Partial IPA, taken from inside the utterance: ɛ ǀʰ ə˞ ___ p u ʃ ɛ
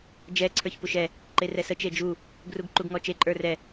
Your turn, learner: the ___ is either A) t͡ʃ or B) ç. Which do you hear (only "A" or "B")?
B